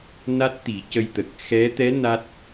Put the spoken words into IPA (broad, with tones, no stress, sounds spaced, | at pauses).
n a˦˥ t̚ t̪ i˨˩˦ c ə˧ j t̪ ə˨˩ k̚ x ɛ˧˥ t̪ ɛ˧˥ n a˦˥ t̚